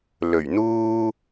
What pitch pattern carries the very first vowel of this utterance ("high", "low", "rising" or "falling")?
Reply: low